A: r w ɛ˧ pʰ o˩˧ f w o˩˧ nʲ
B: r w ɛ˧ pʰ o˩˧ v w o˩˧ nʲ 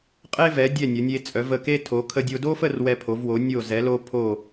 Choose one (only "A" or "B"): B